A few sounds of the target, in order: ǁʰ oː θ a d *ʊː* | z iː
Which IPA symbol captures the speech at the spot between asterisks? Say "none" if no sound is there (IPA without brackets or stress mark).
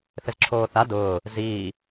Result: ʊː